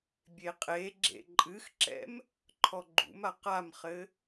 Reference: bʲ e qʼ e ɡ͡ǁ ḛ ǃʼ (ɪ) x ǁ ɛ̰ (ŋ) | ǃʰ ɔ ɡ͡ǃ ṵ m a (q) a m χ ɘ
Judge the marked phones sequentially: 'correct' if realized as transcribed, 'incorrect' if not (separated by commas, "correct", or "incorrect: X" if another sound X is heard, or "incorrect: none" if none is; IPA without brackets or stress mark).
incorrect: ɨ, incorrect: m, correct